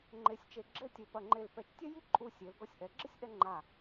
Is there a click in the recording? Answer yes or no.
yes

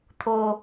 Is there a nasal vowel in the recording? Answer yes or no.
no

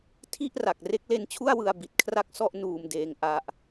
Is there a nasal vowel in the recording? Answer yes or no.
no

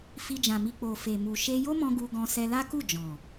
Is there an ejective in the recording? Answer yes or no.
no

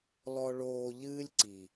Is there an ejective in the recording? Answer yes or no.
no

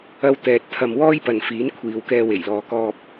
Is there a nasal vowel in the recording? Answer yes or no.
no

